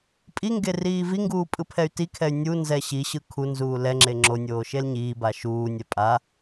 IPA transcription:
pʼiŋɡe riːviŋɡuː pʼɯpʰɛy̯tikʰɛy̯ nʲunzɛ ɕiɕɯ kʰunzuː lɛŋ͡ǁe ŋ͡ǁo nʲoːʃelɲiːba ʃuːnʲɛ pʼa

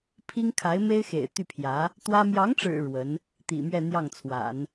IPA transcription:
pʰi˥ŋkʰa˧˥ɪ̯me˥ɪ̯ xḛ˨˩ɪ̯t̪y˥˩pʰjä˧˥ | t̪wä˥ mjɑ˧˥ŋʈ͡ʂɻ̩˨˩ ɻwə˧˥n | t̪ḭ˨˩mɥɛ˥˧n̪jɑ˥˩ŋt͡sʰwa̰˨˩˦n

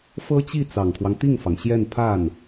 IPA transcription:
fɤ˥t͡ɕi˥˩ t͡sɑ˨˩ŋkʰwɑ˦ŋt̪i˥˩ŋfɑ˩ŋ ɕjɛ˥˧npʰa˥˩n

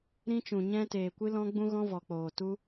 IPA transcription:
ɾĩ˦t͡ʃũ˧ɲɛ̃˦ teː˧kʷɨ˦lɔ̃˦ ɡ͡bũ˦ ɣɔ̃˦vɔ˧k͡poː˧tu˦

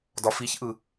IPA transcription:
dɒfiçʔɯ

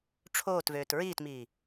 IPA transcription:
ʈ͡ʂʰoːtvøːt ɹiːtmiː

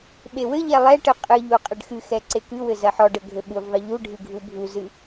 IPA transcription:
ɓewɘʎɛ lˠɛʈɨ qʼɨʎu qʼɘɖxɨxɛ ǀekɨwɘ zɐħɔɖɘ ɡʱɘɓuvðˤɨ ʎuɖʱɨ ɡʱubʱuzɨ

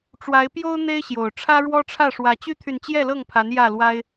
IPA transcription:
ʈ͡ʂwa˨˦ɪ̯pjo˦ʊ̯ n̪e˦ɪ̯ɕjo˨˩ʊ̯ ʈ͡ʂʰä˦ɻwɔ˦ʈ͡ʂʰä˥˨ ʂwä˨˦t͡ɕy˦t̪ʰy˨nt͡ɕjɛ˥˨ lɤ˥˨ŋpʰa˨˦n jä˥˨lwa˦ɪ̯

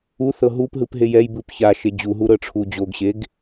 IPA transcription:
uθɤ ɦupɦɯp ɦejɛjbɯp çaʃe d͡ʑuɦu ɾɤʈ͡ʂʰud͡ʑoɡɕeɡ

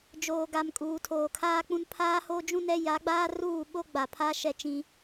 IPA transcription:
d͡ʒoː˨ɡa˨m kʼuː˨tʰoː˨kʰaː˦k͡pũ˦n pʰaː˦ho˦d͡ʒũ˦nɛ˦ ja˨˦ɡ͡baː˦ruː˦˨ ɓo˦ɡ͡ba˨ pʰa˦ʃɛ˦t͡ʃĩ˦

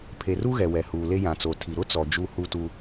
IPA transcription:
pʰe˨ru˦ɣɛ˨ wɛ˨huː˨ le˦jã˨t͡so˨tʰi˨ ɾʊ˦ t͡sɔ˨d͡ʒu˦˨ hu˦˨tu˦

